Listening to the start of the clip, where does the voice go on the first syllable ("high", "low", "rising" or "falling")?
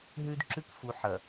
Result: high